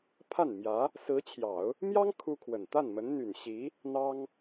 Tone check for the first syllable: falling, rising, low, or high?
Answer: falling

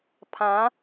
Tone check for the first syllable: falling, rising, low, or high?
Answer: rising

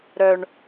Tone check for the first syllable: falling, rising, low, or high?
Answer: low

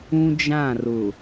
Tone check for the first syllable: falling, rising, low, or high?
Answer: high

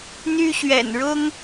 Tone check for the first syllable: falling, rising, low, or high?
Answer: high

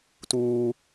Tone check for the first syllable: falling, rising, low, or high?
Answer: high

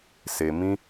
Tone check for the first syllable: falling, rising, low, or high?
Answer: low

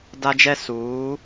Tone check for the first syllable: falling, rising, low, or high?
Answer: high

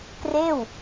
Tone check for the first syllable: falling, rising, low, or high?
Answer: falling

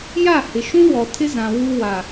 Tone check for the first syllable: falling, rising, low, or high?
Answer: falling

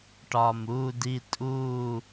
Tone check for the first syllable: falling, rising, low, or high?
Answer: low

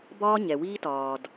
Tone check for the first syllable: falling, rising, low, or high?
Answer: high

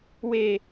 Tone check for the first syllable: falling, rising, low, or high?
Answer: falling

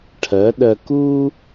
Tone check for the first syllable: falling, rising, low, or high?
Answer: rising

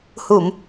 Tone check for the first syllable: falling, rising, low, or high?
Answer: low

